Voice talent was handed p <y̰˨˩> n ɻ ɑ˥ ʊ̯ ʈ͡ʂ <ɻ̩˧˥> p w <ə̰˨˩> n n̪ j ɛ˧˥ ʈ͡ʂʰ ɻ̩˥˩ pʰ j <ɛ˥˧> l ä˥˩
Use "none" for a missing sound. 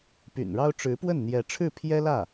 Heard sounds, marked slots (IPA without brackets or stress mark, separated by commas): y̰˨˩, ɻ̩˧˥, ə˥˩, ɛ˥